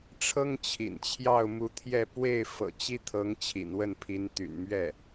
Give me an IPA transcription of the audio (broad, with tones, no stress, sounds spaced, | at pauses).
ʈ͡ʂʰ ɤ˥ ŋ t͡ɕʰ ḭ˨˩ n t͡ɕʰ j ɑ˥˩ ʊ̯ m u˧˥ t̪ʰ j ɛ˥˧ p w e˥˩ ɪ̯ f ɤ̰˨˩ t͡ɕ i˥ t̪ʰ ɤ˧˥ ŋ t͡ɕʰ ḭ˨˩ n w ə˥˩ n pʰ i˧˥ n t̪ y̰˨˩ n m ɥ ɛ˥˩